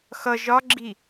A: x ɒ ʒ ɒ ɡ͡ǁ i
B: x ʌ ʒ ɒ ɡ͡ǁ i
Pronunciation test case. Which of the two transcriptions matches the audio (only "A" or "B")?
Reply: B